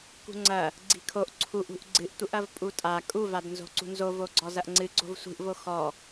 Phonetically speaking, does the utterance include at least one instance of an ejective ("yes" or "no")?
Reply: yes